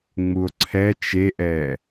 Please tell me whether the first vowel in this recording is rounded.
yes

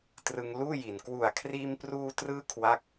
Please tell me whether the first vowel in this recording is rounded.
no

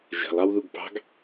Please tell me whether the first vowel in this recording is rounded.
no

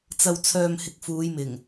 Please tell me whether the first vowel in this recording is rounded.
no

